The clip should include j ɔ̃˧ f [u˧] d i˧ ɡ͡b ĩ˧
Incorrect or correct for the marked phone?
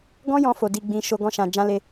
incorrect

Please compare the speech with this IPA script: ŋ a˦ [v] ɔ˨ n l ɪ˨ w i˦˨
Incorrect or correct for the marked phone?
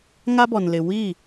incorrect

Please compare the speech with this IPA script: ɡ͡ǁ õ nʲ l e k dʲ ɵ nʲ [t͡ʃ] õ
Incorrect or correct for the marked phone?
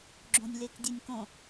incorrect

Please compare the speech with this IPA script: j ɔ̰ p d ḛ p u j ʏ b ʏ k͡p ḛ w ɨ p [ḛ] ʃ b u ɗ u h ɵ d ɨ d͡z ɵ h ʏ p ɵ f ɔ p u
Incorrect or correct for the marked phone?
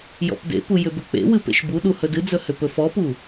correct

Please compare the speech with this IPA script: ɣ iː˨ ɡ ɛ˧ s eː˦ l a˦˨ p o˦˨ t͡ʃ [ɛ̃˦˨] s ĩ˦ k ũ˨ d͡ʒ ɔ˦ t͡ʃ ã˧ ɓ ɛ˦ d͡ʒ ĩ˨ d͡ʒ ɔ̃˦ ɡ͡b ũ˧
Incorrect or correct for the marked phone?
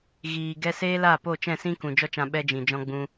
correct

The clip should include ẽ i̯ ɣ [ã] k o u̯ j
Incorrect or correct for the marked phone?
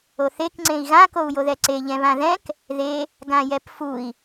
correct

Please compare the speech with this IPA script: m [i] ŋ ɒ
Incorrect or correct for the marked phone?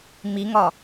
correct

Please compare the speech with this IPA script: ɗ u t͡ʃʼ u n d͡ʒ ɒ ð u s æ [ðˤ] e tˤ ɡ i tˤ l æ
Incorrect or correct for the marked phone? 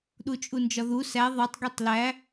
correct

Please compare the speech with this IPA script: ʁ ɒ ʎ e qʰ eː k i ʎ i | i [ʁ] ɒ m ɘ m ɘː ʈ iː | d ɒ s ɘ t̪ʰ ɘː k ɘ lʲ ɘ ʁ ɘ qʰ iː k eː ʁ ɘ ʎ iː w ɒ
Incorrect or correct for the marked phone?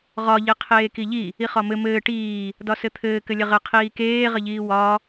incorrect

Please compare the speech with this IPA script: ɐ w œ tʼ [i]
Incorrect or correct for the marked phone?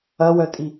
correct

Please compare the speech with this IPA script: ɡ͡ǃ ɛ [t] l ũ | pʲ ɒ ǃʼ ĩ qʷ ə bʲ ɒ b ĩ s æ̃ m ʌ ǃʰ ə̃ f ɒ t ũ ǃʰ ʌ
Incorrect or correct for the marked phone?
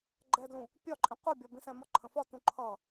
incorrect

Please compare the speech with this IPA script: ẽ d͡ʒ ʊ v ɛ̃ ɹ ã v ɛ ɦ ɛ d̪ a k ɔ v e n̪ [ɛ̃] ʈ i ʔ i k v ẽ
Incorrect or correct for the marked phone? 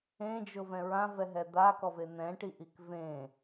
correct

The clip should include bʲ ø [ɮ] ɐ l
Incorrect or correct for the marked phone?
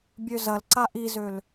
incorrect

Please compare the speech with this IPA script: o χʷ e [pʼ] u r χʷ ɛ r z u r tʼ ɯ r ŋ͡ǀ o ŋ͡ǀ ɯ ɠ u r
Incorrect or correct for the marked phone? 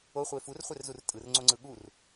incorrect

